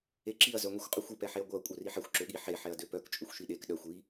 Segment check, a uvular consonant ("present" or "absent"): present